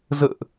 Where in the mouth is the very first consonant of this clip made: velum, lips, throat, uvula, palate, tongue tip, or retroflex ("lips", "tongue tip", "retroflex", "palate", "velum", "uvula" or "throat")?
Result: tongue tip